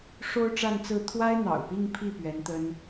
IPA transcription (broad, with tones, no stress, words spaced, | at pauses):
ʂo˥ʊ̯ʈ͡ʂa˥˧nt͡sɹ̩˥˩ t̪ʰwa˥ɪ̯n̪ɑ̰˨˩ʊ̯pi˥˧ŋpʰi˥˩ pɥɛ˧˥nt̪ə˥n